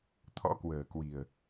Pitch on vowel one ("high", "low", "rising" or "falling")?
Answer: rising